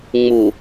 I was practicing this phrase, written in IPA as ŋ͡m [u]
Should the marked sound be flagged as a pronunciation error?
no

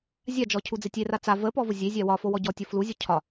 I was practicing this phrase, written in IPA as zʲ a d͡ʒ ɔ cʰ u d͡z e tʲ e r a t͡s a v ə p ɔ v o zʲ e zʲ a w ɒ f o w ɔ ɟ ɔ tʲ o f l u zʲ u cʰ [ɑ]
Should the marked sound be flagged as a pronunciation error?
yes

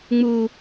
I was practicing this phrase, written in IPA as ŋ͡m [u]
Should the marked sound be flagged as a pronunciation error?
no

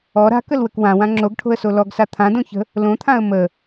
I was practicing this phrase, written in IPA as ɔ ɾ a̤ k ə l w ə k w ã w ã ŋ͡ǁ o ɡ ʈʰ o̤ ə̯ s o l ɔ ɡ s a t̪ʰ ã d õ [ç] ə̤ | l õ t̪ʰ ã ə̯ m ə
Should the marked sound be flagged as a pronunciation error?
no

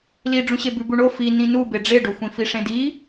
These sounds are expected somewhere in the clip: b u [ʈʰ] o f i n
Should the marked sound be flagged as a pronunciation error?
yes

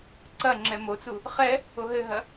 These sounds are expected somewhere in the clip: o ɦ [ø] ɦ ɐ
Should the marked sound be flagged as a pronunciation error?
yes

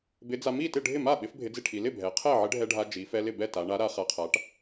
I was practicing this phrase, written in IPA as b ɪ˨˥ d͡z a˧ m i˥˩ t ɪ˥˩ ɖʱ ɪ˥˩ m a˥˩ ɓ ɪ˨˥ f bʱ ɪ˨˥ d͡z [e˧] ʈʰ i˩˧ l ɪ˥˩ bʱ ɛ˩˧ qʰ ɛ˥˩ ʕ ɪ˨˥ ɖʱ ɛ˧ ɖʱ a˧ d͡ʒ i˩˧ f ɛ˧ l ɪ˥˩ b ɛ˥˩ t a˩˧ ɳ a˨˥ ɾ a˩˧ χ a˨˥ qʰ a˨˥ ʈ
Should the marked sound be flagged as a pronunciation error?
yes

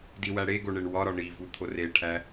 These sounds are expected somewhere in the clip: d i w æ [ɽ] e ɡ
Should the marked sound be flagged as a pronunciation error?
no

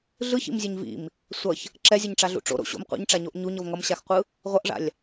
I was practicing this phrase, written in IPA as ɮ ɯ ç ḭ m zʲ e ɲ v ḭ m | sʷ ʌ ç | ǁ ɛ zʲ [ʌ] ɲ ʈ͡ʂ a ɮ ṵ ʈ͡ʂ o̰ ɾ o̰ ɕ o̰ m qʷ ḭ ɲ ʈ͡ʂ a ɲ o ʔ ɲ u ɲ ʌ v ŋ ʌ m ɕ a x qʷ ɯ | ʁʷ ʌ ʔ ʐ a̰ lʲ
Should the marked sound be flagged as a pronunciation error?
no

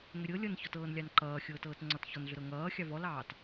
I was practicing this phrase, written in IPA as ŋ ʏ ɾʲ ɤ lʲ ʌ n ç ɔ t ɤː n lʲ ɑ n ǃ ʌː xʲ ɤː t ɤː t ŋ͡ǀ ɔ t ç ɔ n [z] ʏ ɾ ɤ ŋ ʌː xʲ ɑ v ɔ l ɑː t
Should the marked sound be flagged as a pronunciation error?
yes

